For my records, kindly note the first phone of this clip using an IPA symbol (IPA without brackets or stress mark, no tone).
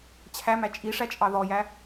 t͡ɕʰ